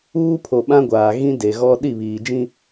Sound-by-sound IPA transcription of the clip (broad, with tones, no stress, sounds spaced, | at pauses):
uː˦ pʰ o˨ ɓ ã˦ ɡʷ aː˨ ɣ ĩ˦ d e˨ ɣ ɔ˦ ɗ i˦˨ β iː˨ d͡ʒ ĩ˦